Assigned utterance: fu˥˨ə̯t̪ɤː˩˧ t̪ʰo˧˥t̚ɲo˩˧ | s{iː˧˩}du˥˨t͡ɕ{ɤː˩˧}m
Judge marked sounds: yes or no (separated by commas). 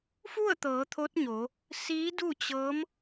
no, no